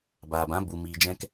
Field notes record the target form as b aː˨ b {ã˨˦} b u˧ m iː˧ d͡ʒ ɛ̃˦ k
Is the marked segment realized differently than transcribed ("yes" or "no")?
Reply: no